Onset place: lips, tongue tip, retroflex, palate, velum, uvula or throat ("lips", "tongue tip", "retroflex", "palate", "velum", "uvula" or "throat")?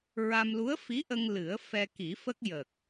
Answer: tongue tip